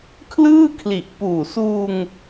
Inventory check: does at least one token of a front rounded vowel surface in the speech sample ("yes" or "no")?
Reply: no